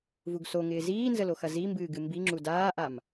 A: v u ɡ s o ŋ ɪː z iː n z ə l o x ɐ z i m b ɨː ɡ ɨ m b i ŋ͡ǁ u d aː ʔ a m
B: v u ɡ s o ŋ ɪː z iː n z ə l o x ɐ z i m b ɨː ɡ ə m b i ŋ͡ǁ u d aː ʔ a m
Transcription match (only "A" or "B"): A